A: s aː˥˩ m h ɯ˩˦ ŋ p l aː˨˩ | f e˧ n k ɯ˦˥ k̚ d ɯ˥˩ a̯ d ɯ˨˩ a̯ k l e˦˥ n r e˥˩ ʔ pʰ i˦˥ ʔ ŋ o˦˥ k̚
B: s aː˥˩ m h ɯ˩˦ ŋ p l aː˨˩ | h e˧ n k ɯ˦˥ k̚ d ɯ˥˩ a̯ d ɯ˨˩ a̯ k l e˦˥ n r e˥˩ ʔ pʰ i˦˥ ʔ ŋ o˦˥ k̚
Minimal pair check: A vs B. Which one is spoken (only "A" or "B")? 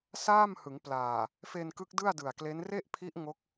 A